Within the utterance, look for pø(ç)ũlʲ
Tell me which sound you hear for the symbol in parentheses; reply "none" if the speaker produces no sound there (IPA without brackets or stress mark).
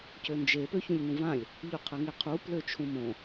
ç